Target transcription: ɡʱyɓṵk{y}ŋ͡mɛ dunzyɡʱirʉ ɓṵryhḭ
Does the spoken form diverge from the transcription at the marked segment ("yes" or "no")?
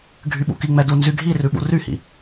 yes